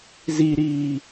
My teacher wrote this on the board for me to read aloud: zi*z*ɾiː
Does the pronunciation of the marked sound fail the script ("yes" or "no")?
yes